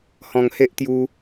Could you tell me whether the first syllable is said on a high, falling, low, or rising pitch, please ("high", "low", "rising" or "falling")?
low